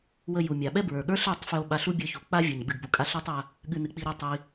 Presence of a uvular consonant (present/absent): absent